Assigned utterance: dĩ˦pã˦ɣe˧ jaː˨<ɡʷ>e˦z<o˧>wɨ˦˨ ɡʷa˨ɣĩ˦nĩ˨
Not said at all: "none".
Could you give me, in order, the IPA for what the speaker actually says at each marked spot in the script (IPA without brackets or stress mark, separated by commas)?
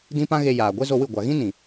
ɡʷ, o˧